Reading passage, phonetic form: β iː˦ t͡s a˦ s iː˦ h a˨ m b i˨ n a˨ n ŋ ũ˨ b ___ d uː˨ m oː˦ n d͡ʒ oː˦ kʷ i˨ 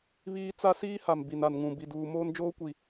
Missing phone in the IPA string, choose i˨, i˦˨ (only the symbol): i˨